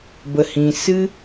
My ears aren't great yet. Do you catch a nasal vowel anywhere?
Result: yes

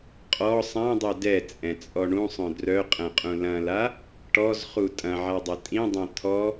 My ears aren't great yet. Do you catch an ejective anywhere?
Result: yes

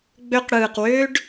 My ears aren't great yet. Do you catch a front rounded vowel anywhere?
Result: yes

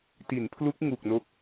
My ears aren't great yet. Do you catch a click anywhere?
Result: no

